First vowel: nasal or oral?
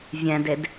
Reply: nasal